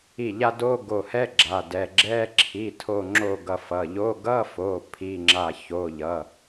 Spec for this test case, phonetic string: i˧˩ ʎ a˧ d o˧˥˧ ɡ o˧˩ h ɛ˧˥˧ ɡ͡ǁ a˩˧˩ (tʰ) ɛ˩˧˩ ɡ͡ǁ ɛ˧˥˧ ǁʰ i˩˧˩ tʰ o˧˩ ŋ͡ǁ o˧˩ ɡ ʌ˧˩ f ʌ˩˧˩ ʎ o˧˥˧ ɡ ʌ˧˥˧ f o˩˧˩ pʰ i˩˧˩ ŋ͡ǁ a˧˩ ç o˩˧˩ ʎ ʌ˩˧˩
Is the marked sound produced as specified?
no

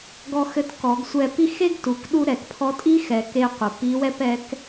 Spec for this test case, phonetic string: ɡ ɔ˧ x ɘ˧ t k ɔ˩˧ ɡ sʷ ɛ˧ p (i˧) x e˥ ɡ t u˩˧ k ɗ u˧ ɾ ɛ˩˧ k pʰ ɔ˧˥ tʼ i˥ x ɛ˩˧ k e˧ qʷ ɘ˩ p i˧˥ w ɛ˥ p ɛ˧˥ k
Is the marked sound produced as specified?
no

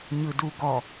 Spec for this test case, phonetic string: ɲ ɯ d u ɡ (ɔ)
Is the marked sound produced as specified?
yes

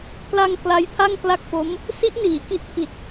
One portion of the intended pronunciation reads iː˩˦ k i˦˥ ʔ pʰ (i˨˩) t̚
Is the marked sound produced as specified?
yes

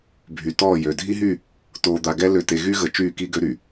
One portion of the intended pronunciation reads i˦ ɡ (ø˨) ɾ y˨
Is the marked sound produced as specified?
no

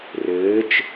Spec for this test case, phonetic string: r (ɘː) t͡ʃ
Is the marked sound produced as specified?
yes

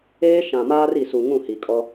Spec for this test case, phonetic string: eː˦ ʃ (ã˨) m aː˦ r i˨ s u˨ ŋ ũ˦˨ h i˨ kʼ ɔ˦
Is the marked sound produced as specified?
yes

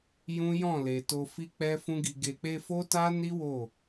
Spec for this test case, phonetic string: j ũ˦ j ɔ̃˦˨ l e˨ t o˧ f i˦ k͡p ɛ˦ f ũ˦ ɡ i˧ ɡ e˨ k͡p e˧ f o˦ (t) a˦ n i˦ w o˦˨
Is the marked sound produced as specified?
yes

